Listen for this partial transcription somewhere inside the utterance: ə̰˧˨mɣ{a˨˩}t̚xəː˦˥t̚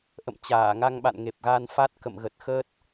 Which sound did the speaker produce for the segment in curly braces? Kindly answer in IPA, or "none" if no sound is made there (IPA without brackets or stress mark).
ə˨˩